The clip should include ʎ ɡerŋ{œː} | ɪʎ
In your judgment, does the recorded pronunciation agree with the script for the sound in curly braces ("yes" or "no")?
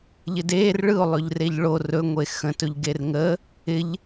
no